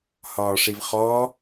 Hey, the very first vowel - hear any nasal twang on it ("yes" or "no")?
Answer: no